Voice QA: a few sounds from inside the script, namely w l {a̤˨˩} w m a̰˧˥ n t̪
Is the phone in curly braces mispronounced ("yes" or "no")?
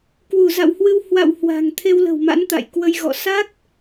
yes